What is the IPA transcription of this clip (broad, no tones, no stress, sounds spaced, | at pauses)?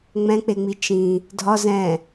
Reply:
ŋ͡m ɛ̃ k͡p e ŋ͡m i t͡ʃ ĩ | dʱ ɒ z ɛ̃